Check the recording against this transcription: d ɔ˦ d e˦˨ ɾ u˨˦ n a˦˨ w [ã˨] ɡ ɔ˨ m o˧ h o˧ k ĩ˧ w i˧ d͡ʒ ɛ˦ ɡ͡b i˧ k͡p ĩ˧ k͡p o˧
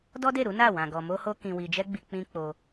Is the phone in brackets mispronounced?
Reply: no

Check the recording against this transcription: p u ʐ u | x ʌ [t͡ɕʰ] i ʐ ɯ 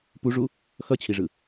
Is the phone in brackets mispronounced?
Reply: no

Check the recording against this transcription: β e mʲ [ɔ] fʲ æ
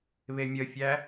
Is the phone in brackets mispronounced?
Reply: yes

